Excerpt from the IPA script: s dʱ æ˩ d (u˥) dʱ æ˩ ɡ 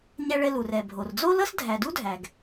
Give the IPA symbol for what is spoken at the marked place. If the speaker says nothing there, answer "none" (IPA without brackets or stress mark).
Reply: u˥